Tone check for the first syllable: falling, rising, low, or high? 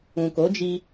low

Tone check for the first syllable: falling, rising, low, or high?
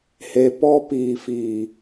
low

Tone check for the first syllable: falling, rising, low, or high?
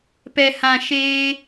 low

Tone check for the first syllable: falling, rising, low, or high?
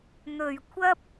low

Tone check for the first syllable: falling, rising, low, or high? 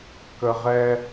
high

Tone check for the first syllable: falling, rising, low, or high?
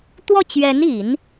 falling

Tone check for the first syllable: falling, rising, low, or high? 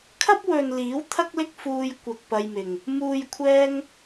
high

